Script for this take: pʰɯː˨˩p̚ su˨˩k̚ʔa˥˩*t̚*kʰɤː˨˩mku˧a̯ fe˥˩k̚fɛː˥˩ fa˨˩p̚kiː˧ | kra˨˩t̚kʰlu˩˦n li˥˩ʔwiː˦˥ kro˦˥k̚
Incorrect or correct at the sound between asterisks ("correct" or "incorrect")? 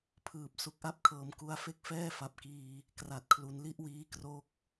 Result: incorrect